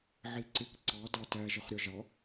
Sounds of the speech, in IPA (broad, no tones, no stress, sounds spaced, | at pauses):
ʕ i ǀ ɪ k ǀ ɑ d ɑ t æ ʒ ə χ ɾʲ ɒ ʒ ɑ